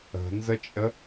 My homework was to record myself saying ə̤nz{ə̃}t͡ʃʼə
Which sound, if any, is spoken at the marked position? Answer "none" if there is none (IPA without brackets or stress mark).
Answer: ə